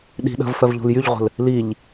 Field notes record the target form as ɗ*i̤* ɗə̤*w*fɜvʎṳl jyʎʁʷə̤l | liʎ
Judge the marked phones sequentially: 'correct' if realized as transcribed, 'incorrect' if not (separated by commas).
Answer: correct, incorrect